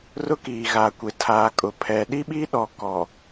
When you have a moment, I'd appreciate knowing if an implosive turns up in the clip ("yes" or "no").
yes